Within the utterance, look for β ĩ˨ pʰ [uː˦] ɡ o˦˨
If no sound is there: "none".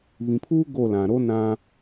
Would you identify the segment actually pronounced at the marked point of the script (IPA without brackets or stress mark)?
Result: uː˦